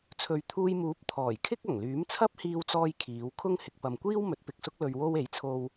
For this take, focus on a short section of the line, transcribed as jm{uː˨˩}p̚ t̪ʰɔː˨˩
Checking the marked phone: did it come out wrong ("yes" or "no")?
yes